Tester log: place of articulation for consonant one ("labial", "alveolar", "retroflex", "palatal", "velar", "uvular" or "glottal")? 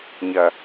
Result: palatal